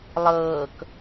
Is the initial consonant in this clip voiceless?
no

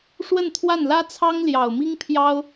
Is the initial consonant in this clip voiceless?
yes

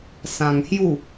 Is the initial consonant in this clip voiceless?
yes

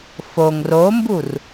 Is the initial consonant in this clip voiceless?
yes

